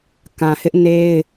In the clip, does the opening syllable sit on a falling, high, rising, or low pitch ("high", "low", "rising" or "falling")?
low